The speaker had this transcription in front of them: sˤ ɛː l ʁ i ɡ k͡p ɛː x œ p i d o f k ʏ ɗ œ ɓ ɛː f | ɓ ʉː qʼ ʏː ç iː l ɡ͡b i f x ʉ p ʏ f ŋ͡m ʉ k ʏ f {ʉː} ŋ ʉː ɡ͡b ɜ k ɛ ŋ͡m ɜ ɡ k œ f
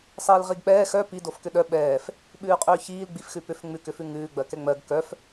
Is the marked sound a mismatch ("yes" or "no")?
yes